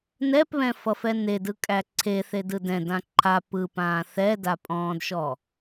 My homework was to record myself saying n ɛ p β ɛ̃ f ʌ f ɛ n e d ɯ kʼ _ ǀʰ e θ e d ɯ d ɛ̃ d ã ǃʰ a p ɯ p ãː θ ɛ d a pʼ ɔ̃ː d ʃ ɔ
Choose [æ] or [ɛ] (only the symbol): æ